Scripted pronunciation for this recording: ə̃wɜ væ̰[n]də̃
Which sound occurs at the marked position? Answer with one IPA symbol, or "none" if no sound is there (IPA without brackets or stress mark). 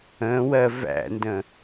n